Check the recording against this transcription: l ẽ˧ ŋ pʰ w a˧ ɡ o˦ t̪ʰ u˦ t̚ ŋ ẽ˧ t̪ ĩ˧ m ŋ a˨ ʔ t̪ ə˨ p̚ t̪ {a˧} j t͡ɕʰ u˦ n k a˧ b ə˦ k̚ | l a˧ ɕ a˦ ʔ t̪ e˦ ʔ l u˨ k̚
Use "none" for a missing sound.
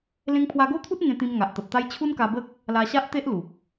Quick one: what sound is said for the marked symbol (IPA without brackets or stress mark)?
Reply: a˦